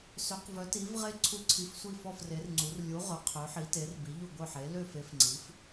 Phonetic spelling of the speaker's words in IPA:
s ø˩˧ q v œ˩˧ t i˩˧ v ʁ e˧˩ ǀʰ u˧˩ ǀʰ i˩˧ f sʷ i˧˩ f ɔ˧˩ f r e˩˧ r ŋ͡ǀ u˩˧ r lʲ u˩˧ ʁ œ˩˧ qʰ ø˩˧ ħ i˩˧ t e˩˧ r b i˩˧ ʎ u˧˩ ɡʷ œ˧˩ ħ e˩˧ l ø˧˩ f e˩˧ f ŋ͡ǀ i˩˧ f

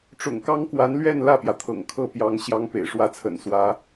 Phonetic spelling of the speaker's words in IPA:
ʈ͡ʂ ʊ̰˨˩ ŋ k ɑ˥ ŋ k w a˧˥ n l ɥ ɛ˥˧ n l ä˥˩ p j ä˩ t̪ʰ ɤ̰˨˩ ŋ kʰ ɤ˥˩ p j ɑ˧˥ ŋ ɕ j ɑ˧˥ ŋ p ḛ˨˩ ɪ̯ ʂ w ä˥˩ t͡sʰ ə̰˨˩ n s w ä˧˥

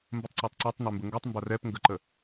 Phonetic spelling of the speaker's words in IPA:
m b ə tˤ ǀ a tˤ ǀ ɛ tˤ n e m b ə ŋ ɡ o tˤ m b a r ɛ p ŋ ɡ ə ǃ ə

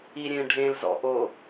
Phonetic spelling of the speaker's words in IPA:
i ɾʲ ẽ ɖʱ ẽ l z ɔ̰ ʔ o

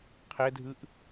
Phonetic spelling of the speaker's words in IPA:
qʰ ɛ dʱ ɯ ʔ

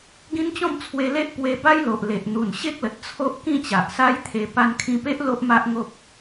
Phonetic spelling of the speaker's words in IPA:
ɡ ĩ˦ n t͡ɕ ɔ̃˥˧ m t͡sʰ w e˧ l e˦ ʔ p w e˧ b a˦ j l o˨ ʔ l e˨ ʔ n̪ u˨˩ n ɕ e˦ k̚ l ə˨ t̚ t͡sʰ o˦ ʔ k ĩ˥˧ t͡ɕ a˨ ʔ s a˦ j t̪ʰ e˧ p a˧ n kʰ ĩ˧ p e˦ ʔ l o˦ ʔ m a˦ ʔ ŋ o˦ p̚

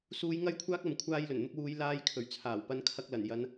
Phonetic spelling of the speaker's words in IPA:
s uː˧ j ŋ ɐ˥ j kʷʰ aː˥ k̚ ɐ˨˧ m kʷʰ aː˧ j l ɵ˨˩ n n̪ ʊ˧ k̚ w uː˨˧ j l aː˧ j kʰ ɵ˨˩ ɥ t͡sʰ aː˨˩ w p ɐ˧ n kʰ ɐ˧ k̚ l ɐ˨˩ n j ɐ˨˧ n

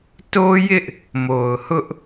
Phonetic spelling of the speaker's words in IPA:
t o˦ j ɪ˦ ʔ | m o˨ ʊ̯ h ʊ˦ ʔ

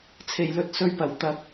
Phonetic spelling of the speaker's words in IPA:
t͡sʰ e˨˩ j l ɵ˨ t̚ s ɵ˨ ɥ p ɐ˨˩ w t̪ ɐ˨˥ k̚

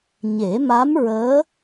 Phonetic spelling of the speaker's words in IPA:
ɲ e˨˩˦ m a˧˥ m ɹ əː˧˥

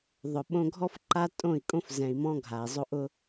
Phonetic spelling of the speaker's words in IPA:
ðˤ ʊ˨ ɓ õ˧ ɡʱ ɔ˦ f ǃ a˦ tʼ õ˦˨ i̯ kʼ õ˦ f z ɛ̃˨ i̯ m ɔ̃˧ ɡʱ a˨ i̯ zˤ o˦ ʔ ʊ˦

